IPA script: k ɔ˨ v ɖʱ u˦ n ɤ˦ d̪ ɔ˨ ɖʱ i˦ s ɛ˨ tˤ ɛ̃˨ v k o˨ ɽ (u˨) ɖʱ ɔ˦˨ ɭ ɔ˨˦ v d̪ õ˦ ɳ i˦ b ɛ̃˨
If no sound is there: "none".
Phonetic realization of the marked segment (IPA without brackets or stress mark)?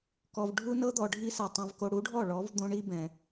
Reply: u˨˦